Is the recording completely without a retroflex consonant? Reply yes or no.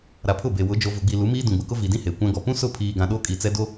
yes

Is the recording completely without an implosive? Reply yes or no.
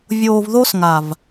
yes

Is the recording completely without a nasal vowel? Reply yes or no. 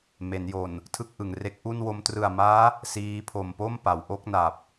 yes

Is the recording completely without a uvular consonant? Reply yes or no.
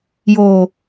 yes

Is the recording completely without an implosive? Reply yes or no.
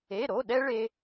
no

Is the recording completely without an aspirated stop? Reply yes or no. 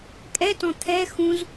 no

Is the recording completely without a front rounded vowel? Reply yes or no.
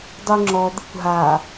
no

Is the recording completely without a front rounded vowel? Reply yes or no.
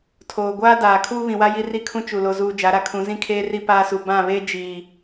yes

